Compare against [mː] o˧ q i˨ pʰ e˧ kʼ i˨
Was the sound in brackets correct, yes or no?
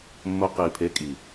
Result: yes